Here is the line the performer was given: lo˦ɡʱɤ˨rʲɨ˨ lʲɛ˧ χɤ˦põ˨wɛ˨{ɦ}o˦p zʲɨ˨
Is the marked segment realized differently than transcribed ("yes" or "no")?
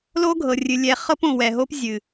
no